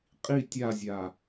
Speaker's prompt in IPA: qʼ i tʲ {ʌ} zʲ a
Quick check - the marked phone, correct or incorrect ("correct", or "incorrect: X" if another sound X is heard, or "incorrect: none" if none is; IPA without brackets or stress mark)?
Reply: incorrect: a